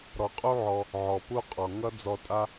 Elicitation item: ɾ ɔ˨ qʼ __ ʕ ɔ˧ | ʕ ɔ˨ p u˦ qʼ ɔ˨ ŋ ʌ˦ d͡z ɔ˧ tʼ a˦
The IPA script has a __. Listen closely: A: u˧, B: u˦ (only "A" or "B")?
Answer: B